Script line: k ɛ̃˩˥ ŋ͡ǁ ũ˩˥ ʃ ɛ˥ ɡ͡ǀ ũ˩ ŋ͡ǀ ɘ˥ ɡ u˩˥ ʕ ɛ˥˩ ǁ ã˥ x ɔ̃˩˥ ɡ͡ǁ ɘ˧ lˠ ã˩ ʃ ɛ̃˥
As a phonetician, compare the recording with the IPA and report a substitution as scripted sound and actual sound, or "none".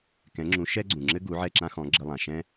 ŋ͡ǀ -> ŋ͡ǁ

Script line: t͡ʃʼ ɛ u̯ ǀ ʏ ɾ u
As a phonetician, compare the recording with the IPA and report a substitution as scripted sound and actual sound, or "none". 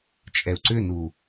ɾ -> n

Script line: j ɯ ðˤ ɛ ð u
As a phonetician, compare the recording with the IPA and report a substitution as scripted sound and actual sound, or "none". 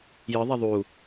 ð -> ðˤ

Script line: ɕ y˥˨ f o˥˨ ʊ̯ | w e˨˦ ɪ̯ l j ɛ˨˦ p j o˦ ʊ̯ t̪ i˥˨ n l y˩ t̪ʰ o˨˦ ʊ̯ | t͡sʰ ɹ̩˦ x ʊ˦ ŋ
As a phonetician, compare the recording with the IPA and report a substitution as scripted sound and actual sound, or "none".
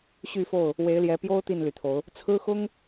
none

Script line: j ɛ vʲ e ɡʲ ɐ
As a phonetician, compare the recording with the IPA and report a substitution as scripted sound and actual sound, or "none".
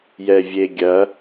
none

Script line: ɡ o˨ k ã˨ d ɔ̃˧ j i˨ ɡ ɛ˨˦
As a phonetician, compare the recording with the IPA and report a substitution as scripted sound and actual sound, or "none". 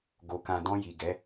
none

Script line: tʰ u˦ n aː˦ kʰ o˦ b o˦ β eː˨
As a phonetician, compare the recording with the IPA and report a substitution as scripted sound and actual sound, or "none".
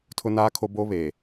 u˦ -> ʊ˦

